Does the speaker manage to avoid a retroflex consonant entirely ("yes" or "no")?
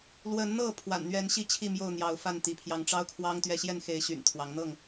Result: no